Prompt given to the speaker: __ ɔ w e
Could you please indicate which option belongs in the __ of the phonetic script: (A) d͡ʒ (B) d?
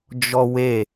A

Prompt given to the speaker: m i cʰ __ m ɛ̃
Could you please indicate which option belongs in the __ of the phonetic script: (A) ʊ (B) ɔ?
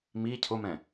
A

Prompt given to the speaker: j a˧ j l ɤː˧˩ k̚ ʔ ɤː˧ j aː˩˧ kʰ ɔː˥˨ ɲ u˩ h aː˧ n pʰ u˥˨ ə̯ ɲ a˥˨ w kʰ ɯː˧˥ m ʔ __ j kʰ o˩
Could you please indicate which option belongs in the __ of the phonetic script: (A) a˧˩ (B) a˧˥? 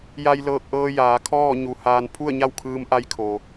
B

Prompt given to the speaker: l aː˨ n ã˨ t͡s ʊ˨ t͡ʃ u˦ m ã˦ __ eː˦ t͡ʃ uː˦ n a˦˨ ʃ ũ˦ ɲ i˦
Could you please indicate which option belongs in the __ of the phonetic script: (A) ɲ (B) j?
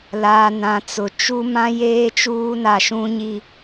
B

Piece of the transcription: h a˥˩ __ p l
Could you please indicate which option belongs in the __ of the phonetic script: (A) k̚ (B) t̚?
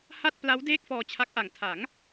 B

